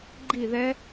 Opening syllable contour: falling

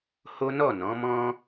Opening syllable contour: high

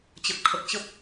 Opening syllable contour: low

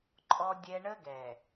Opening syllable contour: high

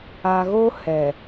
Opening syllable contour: low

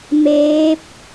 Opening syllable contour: rising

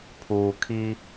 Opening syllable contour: low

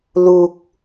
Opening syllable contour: low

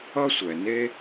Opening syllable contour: high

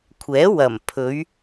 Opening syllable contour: rising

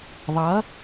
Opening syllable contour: rising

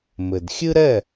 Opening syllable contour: low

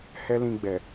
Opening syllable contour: high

